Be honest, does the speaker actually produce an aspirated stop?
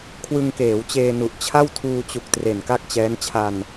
yes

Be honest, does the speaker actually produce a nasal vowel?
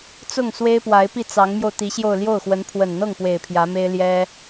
no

